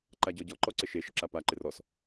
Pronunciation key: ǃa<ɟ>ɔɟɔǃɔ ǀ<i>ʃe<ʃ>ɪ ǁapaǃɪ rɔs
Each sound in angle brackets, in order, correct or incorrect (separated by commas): correct, incorrect, correct